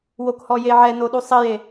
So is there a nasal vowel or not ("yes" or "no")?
no